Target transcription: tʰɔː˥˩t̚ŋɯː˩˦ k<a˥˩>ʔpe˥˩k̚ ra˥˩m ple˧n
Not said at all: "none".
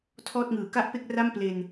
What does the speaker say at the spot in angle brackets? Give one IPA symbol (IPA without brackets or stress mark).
a˥˩